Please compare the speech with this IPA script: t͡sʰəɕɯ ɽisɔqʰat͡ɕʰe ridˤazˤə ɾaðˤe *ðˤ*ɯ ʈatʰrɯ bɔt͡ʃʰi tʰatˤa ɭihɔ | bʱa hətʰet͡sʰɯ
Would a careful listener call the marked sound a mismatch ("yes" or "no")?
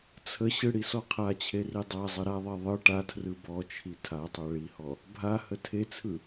no